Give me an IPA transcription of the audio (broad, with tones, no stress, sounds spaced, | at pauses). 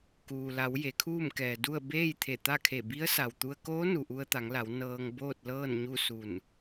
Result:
k uː˩ l a˩˧ w j e˩˧ kʰ uː˥˨ m k ɛː˩ d u˥˨ ə̯ b eː˥˨ j t̪ʰ e˧˩ t̪ a˥˨ kʰ e˧˩ b i˧˥ ə̯ s a˩ w t̪ u˧ ə̯ k oː˧˥ n u˩ ʔ u˧ ə̯ t̪ a˩˧ ŋ l a˩˧ w n ɤː˧ ŋ b oː˥˨ t̚ l ɤː˥˨ n ɲ u˥˨ s u˧˩ n